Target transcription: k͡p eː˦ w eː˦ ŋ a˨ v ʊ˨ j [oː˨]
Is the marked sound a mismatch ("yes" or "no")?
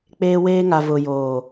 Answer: no